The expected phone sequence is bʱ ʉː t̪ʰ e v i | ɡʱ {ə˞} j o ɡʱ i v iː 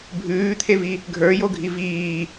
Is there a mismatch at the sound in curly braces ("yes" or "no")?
no